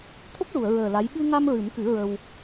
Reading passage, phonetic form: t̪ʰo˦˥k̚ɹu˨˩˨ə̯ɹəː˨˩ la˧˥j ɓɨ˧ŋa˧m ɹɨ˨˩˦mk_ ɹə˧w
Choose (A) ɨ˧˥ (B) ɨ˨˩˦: B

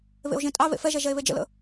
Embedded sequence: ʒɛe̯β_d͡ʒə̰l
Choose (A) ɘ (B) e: B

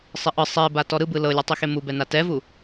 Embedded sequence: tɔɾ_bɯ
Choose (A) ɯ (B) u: A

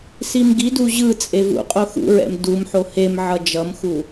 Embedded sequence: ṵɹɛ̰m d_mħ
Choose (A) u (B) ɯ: A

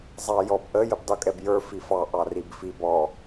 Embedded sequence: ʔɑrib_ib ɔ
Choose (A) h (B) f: B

